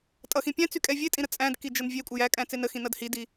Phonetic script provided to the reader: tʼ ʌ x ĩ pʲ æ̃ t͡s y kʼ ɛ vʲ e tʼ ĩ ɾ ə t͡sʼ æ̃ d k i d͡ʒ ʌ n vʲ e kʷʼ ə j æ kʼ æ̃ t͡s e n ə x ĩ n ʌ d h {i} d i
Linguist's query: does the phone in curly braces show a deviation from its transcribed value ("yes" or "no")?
no